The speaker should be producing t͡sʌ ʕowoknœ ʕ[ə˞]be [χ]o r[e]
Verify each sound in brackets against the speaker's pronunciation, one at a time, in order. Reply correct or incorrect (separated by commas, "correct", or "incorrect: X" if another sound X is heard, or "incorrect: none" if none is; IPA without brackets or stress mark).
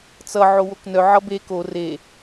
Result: incorrect: ʌ, incorrect: k, correct